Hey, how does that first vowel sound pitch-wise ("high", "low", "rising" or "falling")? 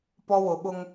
high